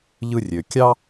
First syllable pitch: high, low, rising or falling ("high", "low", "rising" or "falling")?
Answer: high